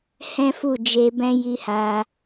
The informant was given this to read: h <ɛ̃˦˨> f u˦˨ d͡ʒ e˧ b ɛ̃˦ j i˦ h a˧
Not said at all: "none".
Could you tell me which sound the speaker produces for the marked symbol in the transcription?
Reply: ɛ̃˦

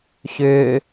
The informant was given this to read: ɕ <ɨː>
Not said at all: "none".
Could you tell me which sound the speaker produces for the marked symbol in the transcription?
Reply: ʏː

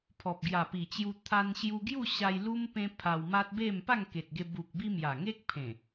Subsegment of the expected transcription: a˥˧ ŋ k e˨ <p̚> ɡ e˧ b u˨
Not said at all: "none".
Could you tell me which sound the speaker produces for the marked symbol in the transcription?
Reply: t̚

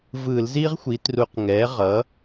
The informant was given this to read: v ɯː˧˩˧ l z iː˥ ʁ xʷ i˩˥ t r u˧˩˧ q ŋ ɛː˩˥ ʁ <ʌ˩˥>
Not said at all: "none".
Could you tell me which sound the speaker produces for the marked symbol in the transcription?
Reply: ʌ˩˥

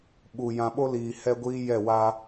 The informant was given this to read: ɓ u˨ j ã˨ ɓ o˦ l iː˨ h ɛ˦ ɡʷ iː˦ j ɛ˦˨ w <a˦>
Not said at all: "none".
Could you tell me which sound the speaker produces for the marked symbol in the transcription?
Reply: a˦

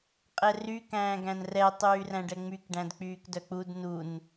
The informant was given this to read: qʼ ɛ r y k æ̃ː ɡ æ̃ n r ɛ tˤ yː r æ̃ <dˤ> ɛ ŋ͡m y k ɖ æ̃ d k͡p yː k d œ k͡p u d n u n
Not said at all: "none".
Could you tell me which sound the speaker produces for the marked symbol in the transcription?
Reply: ɖ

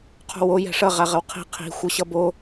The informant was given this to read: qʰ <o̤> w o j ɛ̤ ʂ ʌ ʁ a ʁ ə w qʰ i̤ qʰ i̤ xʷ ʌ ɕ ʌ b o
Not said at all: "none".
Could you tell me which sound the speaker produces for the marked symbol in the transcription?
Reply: o̤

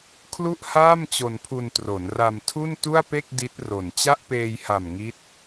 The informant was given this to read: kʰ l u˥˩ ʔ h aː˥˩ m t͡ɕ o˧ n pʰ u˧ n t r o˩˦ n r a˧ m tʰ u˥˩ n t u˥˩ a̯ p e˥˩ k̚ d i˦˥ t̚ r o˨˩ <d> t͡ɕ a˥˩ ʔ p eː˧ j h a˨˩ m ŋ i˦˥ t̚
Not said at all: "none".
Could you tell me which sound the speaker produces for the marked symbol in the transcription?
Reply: n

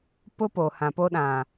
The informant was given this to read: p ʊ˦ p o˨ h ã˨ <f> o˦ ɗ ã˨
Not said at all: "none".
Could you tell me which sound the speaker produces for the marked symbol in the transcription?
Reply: p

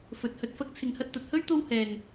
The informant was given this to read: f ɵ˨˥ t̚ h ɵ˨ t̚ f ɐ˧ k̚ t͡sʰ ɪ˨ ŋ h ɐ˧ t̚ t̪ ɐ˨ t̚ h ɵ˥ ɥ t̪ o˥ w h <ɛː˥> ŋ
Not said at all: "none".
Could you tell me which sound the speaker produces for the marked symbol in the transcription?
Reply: ɛː˨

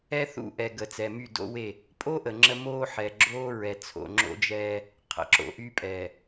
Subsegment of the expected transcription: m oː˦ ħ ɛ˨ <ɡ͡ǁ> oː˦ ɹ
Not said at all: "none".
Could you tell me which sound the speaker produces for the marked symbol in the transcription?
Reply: ɡ͡ǁ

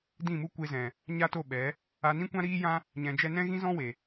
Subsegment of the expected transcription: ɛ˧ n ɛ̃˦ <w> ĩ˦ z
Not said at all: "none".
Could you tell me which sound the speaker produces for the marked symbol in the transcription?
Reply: ɣ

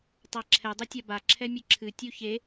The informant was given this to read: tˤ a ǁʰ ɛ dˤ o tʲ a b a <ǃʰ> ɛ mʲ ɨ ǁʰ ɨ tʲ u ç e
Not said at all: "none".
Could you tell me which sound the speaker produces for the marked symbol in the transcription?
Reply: ǁʰ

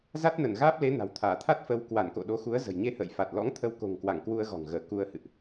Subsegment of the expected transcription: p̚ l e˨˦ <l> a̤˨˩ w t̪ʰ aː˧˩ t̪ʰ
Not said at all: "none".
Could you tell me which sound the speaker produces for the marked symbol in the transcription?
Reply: n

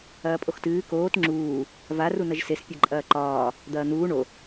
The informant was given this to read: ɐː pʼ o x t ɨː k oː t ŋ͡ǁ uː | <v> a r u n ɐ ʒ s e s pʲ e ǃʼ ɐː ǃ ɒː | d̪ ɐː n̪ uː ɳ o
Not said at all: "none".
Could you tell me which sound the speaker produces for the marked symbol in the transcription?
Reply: v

